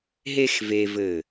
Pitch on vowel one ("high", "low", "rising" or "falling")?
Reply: high